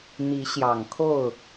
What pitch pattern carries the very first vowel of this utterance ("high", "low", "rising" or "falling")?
rising